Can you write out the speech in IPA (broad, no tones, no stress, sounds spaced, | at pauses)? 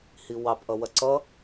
h i w ɑ p ʔ ʌ w ɐ ǀ ʌ